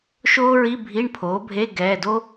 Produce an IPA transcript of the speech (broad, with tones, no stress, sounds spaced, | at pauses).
ʃ oː˥ ɹ i˧˥˧ bʱ i˧˥˧ ɳ pʰ oː˩˥ bʱ e˧˥˧ ɡ ɛː˩˧˩ d o˥